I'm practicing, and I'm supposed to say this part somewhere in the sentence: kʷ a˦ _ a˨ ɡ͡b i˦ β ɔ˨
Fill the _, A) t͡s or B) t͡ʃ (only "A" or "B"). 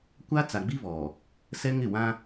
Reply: A